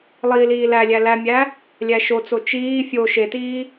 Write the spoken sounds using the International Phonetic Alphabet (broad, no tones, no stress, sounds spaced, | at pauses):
lˠ iː l iː l æ lʲ æ l æ mʲ æ | lʲ æ ʃ o t͡s o t͡ʃ iː fʲ o ʃ e t iː